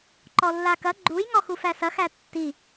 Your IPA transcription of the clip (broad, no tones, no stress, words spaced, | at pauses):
ǃɔlːakɐ ɡ͡ǃujŋɔxu fæsɐx ætːi